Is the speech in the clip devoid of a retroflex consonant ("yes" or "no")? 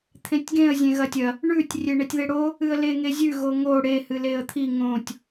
no